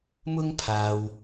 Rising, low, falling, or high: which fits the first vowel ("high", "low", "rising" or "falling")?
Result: high